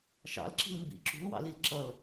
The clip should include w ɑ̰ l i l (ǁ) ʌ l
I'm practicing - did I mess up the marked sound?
no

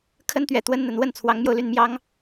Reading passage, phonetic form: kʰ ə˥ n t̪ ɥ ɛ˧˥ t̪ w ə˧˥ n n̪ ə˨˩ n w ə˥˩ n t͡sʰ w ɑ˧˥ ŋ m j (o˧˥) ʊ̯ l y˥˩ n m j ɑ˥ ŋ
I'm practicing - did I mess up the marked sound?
yes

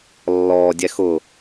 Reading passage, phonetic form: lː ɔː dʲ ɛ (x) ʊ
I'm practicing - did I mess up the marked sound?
no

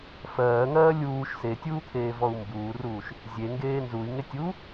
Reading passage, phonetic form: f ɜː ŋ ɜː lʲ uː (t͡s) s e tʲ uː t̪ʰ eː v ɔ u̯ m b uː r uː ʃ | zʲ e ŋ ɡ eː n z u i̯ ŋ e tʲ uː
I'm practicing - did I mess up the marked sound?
yes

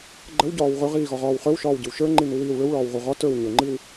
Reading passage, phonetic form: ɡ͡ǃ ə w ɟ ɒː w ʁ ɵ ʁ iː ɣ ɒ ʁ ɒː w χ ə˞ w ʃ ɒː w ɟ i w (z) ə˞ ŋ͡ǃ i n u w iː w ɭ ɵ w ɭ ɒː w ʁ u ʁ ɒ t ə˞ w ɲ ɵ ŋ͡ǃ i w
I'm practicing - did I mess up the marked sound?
yes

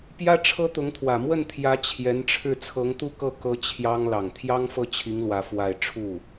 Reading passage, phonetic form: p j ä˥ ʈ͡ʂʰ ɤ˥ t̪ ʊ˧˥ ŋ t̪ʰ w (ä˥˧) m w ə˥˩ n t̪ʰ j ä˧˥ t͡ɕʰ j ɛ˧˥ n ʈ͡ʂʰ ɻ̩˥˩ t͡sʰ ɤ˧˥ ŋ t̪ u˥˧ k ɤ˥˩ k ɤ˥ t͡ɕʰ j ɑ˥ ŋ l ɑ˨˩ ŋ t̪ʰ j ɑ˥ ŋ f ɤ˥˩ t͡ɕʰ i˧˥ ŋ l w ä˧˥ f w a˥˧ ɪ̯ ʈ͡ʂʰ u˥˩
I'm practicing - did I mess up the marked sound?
yes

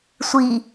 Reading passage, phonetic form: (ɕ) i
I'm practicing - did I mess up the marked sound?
yes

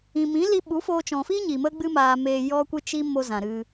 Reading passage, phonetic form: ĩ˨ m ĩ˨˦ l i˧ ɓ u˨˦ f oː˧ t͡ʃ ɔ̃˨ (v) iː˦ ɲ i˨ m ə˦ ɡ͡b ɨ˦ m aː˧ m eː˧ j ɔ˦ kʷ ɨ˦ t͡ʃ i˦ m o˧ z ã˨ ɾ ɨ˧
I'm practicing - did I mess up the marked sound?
yes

